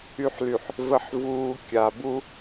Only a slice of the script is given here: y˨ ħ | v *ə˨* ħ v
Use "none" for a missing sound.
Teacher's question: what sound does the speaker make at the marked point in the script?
ə˨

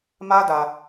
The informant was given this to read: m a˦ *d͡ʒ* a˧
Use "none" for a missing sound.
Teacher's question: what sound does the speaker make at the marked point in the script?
d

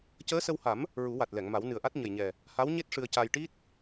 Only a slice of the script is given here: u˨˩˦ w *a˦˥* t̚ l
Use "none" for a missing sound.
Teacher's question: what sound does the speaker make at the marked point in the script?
a˨˩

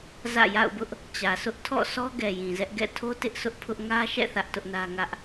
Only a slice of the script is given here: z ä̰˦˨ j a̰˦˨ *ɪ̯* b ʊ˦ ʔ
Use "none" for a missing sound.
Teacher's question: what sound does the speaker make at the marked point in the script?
ʊ̯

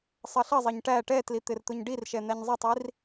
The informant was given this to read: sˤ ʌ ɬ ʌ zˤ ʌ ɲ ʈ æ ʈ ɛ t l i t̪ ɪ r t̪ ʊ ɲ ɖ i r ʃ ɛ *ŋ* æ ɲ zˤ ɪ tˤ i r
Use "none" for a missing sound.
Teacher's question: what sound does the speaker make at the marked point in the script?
n̪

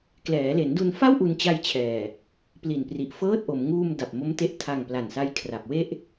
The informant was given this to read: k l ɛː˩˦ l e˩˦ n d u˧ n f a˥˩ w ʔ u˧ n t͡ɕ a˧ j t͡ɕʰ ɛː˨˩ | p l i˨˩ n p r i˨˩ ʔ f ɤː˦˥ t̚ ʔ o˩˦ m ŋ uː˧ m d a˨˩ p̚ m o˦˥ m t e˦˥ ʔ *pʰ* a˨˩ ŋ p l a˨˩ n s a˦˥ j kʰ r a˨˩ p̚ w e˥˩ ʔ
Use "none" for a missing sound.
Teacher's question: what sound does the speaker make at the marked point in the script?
tʰ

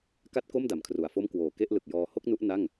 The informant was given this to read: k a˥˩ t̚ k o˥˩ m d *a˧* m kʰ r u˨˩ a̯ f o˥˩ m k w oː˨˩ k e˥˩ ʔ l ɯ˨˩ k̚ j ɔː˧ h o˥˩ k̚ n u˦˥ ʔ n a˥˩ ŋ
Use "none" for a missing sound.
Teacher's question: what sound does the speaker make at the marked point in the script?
a˨˩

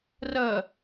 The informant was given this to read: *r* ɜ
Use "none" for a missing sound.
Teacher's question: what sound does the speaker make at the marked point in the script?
r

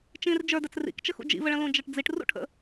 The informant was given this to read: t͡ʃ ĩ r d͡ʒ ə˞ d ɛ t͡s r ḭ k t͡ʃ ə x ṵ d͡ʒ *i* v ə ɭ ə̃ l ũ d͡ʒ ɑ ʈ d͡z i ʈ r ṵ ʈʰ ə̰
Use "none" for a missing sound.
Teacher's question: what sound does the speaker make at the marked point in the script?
ḭ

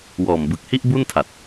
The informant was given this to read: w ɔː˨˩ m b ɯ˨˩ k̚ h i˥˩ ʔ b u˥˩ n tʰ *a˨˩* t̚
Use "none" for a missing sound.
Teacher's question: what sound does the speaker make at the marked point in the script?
a˨˩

